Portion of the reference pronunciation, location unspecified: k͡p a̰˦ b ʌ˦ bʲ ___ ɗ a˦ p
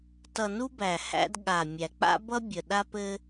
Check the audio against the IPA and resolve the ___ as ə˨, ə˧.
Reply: ə˨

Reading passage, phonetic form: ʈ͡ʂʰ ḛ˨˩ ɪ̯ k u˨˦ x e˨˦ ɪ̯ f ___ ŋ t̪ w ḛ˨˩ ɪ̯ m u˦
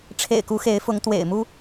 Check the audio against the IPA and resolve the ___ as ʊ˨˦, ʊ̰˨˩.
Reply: ʊ˨˦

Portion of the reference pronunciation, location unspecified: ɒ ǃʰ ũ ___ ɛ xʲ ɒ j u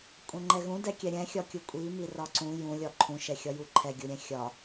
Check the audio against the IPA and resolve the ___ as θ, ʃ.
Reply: ʃ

